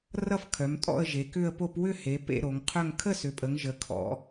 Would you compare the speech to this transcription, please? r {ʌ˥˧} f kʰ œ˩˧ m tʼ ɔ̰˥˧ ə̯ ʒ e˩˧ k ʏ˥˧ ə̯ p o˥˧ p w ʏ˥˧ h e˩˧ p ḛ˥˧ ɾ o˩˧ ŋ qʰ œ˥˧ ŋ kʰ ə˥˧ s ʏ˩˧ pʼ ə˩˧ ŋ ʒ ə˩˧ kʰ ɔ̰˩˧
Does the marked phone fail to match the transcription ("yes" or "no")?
no